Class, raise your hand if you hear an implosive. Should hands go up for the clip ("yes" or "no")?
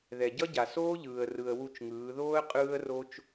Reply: no